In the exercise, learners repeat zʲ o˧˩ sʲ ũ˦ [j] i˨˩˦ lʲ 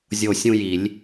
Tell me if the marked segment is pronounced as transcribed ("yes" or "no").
yes